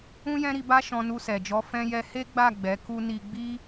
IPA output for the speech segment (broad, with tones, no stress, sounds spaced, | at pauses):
ũ˦ j ɛ̃˦ ɾ i˧ b a˦ ʃ ɔ̃˧ n u˧ s ɛ˨ d͡ʒ ɔ˨˦ f ɛ̃˧ j ɛ˧ h e˦ ɡ͡b a˦˨ ɡ͡b ɛ˨˦ k u˦ n i˧ ɡ͡b i˦